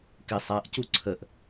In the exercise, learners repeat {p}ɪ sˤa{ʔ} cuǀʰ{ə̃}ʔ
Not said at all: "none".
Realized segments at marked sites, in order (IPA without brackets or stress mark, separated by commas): k, ʔ, ə